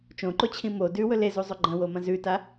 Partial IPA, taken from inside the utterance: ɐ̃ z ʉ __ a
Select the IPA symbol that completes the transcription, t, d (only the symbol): t